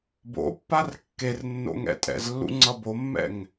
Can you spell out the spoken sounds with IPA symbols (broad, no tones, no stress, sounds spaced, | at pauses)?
b o̰ pː a r kː e r nː o̰ ŋ ɛ̰ tʼ ɛ̰ z lː ṵ ŋ͡ǀ ʌ b o mː ɛ̰ ŋ